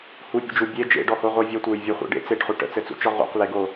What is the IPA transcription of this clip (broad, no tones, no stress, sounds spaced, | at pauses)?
h u pʲ ṵ d͡ʒ u bʲ e d͡ʒ ḛ ɖ ɔ h o ʁʷ ə˞ vʲ ɔ tʷ ə˞ j vʲ ə χʷ ḛ ɖ ḛ t͡s e ʈ χ u ʈ ə̰ t͡s ɘ t͡s ṵ t͡ʃ ɔ ʁ ṵ q l e ɡ o